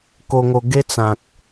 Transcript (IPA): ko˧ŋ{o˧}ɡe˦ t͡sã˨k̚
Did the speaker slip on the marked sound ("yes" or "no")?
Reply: no